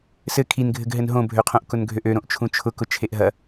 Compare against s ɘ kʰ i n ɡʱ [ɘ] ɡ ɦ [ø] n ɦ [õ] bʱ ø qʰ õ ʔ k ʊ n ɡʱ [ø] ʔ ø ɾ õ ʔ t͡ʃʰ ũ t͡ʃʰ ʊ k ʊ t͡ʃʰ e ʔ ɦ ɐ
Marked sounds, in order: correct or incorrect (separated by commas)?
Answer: correct, incorrect, correct, correct